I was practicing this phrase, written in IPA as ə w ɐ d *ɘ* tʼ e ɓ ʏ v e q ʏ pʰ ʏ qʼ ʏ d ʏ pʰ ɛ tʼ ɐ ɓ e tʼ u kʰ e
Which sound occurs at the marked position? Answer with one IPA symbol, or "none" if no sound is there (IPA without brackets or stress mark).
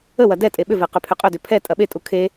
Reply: ɛ